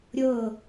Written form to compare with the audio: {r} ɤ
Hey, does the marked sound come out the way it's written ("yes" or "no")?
no